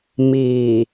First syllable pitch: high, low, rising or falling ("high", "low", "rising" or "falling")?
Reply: low